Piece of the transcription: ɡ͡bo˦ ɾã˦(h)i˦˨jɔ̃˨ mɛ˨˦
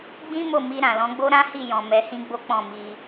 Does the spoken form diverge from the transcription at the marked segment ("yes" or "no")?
no